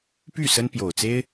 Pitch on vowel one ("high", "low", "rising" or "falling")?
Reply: falling